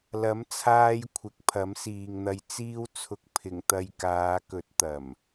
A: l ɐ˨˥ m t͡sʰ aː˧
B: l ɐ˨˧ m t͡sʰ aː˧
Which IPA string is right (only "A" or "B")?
A